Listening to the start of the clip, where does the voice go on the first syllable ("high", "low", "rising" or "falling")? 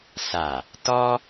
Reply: low